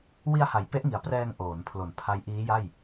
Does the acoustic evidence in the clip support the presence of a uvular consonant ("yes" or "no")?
no